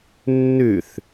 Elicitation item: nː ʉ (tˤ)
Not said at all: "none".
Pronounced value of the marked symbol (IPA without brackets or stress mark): θ